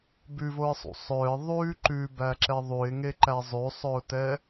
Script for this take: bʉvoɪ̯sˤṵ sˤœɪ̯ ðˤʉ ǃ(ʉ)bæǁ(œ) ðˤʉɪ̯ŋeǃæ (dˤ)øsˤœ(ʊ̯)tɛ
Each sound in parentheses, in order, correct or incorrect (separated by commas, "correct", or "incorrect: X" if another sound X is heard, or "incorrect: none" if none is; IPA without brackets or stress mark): correct, incorrect: ɛ, incorrect: zˤ, correct